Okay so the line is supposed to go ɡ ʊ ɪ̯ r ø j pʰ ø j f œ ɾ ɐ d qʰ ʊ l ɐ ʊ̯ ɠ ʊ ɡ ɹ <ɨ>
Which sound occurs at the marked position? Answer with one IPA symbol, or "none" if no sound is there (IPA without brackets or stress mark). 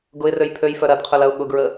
ə